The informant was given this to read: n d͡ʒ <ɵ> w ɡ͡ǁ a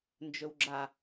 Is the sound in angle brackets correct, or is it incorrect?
correct